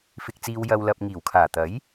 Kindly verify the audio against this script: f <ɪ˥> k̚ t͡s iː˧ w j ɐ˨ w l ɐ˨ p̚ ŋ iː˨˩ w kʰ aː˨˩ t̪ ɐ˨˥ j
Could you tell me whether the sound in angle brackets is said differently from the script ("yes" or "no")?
yes